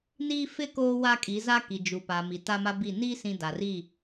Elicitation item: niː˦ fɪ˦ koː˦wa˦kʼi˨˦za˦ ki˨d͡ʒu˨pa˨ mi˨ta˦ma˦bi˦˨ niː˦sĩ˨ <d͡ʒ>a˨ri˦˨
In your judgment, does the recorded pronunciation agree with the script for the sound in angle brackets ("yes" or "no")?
no